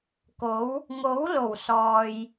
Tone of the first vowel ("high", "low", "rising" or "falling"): rising